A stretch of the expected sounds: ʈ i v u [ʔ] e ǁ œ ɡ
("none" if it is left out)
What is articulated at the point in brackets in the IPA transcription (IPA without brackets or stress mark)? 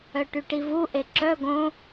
ʔ